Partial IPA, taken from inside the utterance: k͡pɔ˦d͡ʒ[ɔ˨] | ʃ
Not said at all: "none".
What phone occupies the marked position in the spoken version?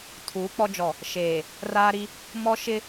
ɔ˨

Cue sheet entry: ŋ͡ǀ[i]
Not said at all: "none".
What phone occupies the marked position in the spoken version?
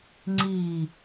i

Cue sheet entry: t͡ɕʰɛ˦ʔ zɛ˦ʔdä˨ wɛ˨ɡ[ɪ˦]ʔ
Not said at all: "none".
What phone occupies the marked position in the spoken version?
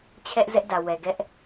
ɛ˦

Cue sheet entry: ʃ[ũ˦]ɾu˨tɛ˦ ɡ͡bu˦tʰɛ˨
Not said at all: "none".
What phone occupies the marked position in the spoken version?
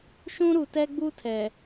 ũ˦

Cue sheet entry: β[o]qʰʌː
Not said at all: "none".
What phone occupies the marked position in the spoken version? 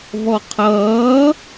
ɔ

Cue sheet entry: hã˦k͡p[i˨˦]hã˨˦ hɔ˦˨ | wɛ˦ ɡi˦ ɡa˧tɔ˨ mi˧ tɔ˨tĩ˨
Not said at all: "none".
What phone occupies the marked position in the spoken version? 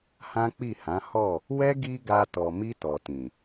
i˦˨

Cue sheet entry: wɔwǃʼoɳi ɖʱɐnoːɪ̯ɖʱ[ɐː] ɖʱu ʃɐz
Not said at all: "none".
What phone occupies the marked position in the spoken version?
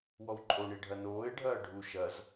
ɐː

